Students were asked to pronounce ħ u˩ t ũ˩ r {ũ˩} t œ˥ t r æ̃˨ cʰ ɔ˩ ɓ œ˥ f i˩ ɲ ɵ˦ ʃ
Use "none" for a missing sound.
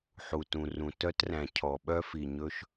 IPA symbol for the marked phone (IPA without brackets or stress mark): ũ˩